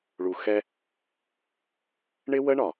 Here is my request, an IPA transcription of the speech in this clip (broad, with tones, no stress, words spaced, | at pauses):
ɭu˨xɛ˦ | ɳɪ˦wə˦ɳɒ˨